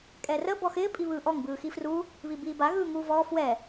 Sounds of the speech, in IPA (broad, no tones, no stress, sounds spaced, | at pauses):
kʼ ɛ r ə b ɔ x ɪː pʼ i β ɯː ʔ ɔ ŋ b ɯː x i f r u | β i b iː b a ɣ ɯː ŋ uː v ɔː f w ɛ